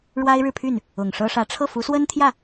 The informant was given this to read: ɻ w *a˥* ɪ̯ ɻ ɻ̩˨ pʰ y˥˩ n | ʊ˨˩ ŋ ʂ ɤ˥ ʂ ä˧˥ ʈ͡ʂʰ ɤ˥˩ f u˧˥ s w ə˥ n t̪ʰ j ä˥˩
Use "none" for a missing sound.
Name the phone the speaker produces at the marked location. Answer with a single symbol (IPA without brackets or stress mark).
a˥